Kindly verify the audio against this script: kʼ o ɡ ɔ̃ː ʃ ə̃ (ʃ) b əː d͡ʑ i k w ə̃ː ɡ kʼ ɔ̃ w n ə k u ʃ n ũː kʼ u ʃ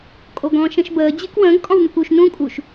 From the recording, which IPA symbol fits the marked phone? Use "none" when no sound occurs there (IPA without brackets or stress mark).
ʃ